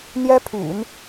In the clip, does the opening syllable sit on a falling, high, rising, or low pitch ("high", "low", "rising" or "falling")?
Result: high